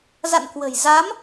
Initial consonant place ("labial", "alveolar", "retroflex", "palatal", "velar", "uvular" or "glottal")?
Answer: alveolar